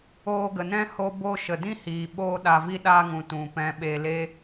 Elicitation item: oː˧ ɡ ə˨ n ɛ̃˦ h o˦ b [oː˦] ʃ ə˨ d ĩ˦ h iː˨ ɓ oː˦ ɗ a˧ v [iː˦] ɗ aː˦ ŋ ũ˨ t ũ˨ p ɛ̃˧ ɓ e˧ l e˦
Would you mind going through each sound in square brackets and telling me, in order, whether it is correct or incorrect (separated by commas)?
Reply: incorrect, incorrect